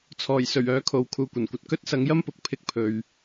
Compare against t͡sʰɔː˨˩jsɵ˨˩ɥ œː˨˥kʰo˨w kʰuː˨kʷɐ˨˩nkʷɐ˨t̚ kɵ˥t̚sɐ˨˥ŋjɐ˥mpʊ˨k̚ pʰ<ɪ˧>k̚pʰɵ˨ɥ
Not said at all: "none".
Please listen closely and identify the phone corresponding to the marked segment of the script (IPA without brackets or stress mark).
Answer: ɪ˧